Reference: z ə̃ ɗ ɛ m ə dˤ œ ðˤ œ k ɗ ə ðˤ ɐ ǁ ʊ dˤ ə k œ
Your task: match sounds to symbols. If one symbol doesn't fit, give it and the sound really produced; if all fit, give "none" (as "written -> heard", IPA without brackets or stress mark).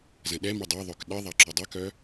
none